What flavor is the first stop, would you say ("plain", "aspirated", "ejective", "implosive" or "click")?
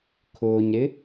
aspirated